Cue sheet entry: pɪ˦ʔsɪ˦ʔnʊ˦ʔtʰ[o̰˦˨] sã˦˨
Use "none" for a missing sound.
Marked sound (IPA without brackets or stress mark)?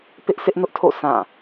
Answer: o̰˦˨